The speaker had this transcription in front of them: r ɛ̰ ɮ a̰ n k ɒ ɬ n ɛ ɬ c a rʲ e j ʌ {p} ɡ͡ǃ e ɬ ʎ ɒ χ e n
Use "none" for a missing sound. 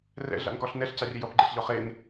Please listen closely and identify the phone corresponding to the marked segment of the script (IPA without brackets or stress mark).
p